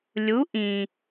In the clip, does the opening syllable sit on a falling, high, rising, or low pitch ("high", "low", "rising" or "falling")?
rising